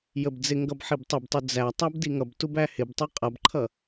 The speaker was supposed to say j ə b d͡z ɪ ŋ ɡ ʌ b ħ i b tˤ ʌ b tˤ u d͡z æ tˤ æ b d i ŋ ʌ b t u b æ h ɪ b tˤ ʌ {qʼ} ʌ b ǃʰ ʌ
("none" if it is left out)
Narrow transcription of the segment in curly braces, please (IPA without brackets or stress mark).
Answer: qʼ